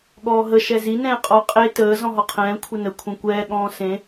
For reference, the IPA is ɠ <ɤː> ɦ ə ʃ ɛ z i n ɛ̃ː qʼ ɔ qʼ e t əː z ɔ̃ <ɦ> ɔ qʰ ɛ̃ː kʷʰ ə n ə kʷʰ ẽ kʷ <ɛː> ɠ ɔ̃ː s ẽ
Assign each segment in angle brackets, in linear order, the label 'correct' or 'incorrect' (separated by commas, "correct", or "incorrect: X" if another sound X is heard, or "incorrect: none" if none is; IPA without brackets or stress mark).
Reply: incorrect: ɔː, correct, correct